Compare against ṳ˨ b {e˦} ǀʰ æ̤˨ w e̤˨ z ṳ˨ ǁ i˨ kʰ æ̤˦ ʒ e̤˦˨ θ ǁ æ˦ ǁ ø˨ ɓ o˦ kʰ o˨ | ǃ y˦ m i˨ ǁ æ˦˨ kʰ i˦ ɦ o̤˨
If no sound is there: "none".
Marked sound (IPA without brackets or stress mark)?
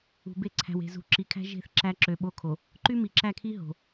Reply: e˦